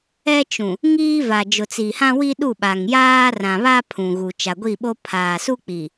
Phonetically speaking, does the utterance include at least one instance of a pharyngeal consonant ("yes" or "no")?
no